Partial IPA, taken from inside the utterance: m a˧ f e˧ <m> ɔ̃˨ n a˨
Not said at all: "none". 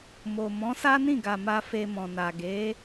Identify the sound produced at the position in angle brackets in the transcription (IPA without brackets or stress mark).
m